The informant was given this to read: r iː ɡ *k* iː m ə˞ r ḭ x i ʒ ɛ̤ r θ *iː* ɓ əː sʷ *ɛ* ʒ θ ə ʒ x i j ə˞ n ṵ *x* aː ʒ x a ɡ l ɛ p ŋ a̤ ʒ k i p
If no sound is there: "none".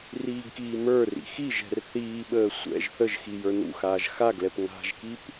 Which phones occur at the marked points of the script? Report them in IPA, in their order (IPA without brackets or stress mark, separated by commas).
k, iː, ɛ̰, x